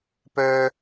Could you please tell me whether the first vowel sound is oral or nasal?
oral